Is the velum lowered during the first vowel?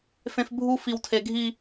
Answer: yes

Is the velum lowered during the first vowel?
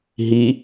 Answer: no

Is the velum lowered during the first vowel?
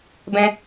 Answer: yes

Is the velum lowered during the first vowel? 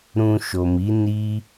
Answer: yes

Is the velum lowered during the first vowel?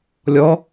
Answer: no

